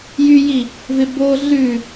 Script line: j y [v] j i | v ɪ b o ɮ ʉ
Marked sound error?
yes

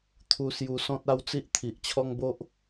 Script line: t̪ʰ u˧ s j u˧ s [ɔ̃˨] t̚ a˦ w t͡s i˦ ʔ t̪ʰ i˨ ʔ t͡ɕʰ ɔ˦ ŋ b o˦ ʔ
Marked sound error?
yes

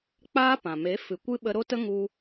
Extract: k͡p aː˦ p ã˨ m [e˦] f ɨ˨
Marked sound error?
yes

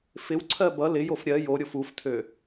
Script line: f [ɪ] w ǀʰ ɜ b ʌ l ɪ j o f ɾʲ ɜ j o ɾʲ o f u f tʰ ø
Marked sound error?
no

